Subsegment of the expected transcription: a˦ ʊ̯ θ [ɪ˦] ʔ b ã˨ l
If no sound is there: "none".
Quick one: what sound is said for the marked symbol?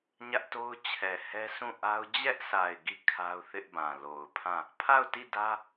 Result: ɪ˦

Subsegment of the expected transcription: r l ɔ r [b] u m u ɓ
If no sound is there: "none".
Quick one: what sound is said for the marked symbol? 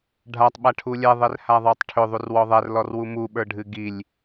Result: w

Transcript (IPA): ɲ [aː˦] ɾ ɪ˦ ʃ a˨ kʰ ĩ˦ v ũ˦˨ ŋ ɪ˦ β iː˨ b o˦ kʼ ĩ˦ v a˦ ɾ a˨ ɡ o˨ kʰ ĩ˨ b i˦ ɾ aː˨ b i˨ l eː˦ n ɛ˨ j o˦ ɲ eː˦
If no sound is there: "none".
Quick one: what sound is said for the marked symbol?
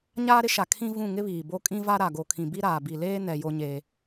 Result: aː˦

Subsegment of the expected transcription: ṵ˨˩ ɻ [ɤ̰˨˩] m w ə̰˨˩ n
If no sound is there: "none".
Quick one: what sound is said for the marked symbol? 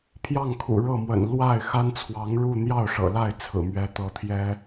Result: ɤ˥˩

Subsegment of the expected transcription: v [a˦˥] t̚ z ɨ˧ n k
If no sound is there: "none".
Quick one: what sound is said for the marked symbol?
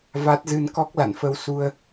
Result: a˦˥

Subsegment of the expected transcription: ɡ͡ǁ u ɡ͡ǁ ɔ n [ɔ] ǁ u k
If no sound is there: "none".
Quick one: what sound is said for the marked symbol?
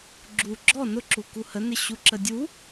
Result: ʊ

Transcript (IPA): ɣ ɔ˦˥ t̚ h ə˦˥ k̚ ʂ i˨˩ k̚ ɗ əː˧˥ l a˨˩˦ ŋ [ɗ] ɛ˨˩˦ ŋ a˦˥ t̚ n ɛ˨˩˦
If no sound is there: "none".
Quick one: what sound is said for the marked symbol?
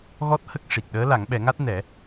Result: ɓ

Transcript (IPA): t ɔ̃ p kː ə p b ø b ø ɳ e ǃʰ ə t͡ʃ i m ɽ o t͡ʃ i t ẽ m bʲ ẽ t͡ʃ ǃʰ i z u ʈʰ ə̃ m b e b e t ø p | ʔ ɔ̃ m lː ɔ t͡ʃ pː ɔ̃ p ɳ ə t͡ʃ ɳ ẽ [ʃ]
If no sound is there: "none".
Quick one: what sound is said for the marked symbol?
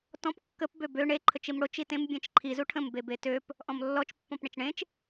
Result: t͡ʃ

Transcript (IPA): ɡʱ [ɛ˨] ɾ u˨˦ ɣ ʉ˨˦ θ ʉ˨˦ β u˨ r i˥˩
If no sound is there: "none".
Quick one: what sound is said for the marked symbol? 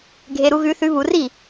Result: e˨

